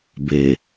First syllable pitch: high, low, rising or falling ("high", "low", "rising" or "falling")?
low